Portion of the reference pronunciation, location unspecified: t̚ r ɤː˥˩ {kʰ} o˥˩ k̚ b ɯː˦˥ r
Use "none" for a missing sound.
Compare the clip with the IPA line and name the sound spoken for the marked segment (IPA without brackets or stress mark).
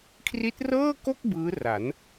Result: k